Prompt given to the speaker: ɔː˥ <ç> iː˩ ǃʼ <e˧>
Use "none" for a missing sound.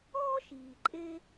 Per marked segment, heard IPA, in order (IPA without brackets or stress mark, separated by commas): ʃ, e˧